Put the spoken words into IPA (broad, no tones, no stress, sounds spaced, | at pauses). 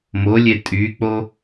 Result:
m o lʲ e tʼ y k͡p o